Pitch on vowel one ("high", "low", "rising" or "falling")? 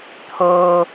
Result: low